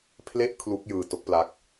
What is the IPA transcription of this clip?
pʰ l e˥˩ ʔ kʰ l u˦˥ k̚ j ɯː˧ t o˦˥ k̚ p l a˦˥ k̚

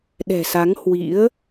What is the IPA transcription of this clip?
ɗ ɛ̤˨˩ s a˨˦ ŋ h w ḭ˧˥ ə̯

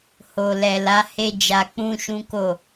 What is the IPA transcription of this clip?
h o˨ l ɛ˨ l a˨˦ h e˦ d͡ʒ a˧ k͡p ũ˦ ʃ ũ˦ k o˦˨

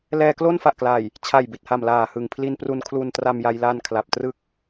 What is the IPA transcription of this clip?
l ɛː˧ k l o˥˩ n f a˨˩ ʔ k l a˨˩ j | t͡ɕʰ a˨˩ j b i˨˩ t̚ h a˨˩ m l aː˨˩ h ɯ˨˩ ŋ pʰ l i˧ n p r u˧ n kʰ l u˧ n t r a˧ m j a˧ j l aː˧ n kʰ l a˨˩ p̚ t r ɯ˦˥ k̚

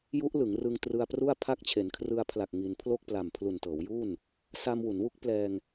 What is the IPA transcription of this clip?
j u˦˥ ʔ l ɯ˩˦ ŋ r ɯ˧ ŋ t r ɯ˧ a̯ p r u˥˩ a̯ pʰ a˦˥ k̚ t͡ɕʰ e˩˦ n kʰ r ɯ˧ a̯ pʰ l a˨˩ k̚ ŋ i˧ n pʰ l o˥˩ k̚ p l a˨˩ m pʰ l u˨˩ n t ɤː˩˦ w j uː˥˩ n | s a˧ m w u˩˦ n w u˦˥ k̚ p l ɛː˧ ŋ

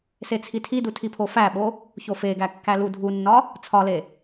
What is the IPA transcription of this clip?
s e t͡sʰ i tʰ i d u tʰ i pʰ o f æ ɓ o | ç o f e ɡ æ kː æ l u dʱ u nː ɒ | t͡sʰ ɒ l e

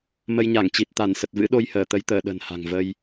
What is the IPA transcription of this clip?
m ə˧ j ɲ a˧˩ ŋ t͡ɕ i˨˩ t̚ t̪ a˧˩ n s ə˨˩ t̚ v ɨ̰˧˥ ɗ o˧ j h əː˧˩ t̪ ə˨˦ j t̪ əː˧˩ ɗ ə̤˨˩ n h a̤˨˩ ŋ v ə˧ j

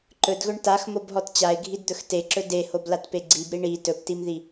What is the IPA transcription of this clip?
ǃ ɵ d ɣ ɵ ɳ t a x m o b ɦ ɔ t t͡ɕ a ɪ̯ ɡʱ i d d̪ ɵ x t e ǁ ɵ d e h o b l a t p e ɡ͡ǀ i b ɾ i ɳ i t ɵ p t i m ð i

